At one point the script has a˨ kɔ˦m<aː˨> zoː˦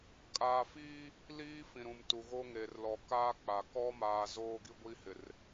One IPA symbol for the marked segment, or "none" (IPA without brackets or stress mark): aː˨